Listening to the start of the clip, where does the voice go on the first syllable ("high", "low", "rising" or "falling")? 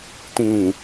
low